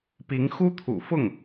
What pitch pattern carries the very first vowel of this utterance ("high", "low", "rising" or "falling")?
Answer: rising